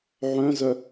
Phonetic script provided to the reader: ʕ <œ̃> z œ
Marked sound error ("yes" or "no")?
no